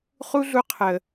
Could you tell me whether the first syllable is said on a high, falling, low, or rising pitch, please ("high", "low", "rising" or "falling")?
high